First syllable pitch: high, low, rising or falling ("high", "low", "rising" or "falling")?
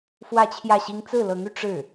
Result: falling